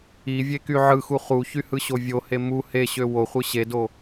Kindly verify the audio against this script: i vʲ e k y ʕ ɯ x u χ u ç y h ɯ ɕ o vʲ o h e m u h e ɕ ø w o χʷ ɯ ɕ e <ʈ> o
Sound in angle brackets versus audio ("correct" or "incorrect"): incorrect